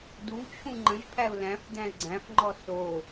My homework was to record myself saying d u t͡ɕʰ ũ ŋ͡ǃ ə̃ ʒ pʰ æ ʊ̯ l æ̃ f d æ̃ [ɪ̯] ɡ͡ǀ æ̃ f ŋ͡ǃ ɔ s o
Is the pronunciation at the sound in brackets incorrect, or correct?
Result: correct